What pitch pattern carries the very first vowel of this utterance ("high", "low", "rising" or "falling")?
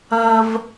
high